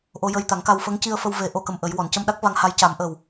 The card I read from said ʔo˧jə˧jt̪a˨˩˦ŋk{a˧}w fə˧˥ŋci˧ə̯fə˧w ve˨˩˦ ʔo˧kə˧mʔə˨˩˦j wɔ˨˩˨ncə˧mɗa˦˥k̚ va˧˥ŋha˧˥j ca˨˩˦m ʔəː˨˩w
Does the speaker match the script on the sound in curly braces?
yes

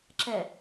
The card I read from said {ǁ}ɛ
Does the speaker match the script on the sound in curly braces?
yes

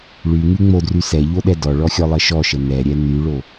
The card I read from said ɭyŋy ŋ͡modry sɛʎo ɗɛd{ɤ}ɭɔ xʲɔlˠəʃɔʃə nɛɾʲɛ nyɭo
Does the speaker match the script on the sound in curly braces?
no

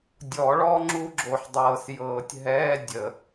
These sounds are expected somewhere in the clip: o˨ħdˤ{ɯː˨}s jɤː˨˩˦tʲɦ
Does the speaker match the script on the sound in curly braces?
no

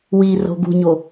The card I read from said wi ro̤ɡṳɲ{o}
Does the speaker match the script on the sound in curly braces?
yes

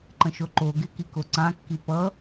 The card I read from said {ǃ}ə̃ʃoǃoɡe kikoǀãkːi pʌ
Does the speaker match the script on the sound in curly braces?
yes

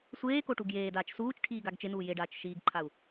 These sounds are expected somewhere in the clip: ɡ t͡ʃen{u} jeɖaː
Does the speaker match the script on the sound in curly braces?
no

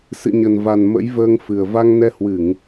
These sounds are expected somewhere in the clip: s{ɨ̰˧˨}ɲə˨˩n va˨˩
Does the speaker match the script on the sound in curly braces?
yes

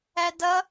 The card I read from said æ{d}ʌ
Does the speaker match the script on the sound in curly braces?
yes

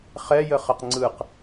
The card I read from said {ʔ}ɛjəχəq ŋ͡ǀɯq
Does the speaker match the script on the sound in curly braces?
no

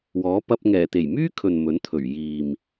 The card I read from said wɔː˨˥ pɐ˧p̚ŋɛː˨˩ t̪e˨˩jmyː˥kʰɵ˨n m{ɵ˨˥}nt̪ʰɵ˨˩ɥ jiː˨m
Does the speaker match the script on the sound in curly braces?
yes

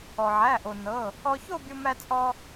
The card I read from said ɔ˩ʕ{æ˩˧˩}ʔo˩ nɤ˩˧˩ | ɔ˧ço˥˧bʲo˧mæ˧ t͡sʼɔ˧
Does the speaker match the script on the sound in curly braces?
yes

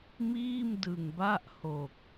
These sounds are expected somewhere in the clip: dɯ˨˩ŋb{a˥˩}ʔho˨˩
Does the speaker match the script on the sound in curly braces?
yes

